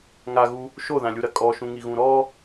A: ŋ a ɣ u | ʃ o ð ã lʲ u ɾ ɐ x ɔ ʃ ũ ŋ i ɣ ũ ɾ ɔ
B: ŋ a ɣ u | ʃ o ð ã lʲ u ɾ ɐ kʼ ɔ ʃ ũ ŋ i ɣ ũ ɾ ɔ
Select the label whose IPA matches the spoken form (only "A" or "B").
B